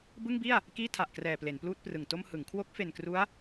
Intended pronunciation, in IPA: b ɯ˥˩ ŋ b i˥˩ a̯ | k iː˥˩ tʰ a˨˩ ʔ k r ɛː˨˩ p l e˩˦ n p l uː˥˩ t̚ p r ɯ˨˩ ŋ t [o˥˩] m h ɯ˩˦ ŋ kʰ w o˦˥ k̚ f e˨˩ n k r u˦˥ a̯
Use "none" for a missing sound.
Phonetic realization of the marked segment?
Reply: o˥˩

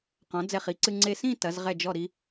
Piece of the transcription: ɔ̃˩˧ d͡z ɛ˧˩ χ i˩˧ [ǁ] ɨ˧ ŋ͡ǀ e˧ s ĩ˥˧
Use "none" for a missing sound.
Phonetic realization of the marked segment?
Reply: ǀ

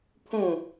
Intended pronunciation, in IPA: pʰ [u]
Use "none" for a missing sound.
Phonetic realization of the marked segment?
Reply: ũ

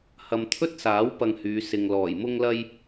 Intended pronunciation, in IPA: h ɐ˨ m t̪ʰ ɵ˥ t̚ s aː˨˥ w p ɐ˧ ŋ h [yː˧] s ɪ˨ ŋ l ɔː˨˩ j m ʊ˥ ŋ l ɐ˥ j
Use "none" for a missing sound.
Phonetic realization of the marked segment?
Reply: yː˨˧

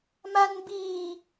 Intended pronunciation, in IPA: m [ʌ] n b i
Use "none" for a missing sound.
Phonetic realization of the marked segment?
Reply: a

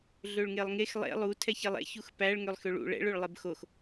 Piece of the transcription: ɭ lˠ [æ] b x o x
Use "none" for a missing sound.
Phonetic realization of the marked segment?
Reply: ɛ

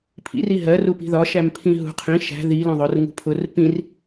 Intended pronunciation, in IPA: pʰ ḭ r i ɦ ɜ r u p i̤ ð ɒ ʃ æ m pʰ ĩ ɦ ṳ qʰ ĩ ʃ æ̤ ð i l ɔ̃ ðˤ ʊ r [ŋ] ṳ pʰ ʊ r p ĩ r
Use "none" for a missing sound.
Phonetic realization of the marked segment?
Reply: ŋ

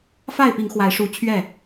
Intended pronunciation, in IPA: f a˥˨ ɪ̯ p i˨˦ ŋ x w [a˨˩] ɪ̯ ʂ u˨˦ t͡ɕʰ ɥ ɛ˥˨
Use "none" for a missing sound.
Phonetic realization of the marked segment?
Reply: a˨˦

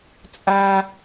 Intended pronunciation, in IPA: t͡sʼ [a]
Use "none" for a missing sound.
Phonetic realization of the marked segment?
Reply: a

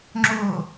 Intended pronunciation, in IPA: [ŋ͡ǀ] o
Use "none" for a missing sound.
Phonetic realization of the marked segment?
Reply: ŋ͡ǁ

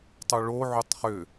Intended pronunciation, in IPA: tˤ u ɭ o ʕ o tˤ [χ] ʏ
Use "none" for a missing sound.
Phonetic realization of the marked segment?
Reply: χ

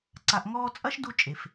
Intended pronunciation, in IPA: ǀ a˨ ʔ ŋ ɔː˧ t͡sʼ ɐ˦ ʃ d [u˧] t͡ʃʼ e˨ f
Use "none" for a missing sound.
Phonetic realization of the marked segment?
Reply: u˧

